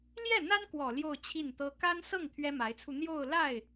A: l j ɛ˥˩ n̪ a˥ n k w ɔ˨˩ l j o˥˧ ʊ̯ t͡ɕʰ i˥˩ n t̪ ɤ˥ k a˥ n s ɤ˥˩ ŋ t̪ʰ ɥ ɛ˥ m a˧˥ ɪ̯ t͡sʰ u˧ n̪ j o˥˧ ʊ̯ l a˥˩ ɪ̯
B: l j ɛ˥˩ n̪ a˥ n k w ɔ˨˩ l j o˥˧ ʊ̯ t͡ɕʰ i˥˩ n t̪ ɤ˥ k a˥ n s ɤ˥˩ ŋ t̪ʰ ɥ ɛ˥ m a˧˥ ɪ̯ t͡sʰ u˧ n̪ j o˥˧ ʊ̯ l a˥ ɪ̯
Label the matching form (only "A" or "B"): A